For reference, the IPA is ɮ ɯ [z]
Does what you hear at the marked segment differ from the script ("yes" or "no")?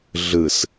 yes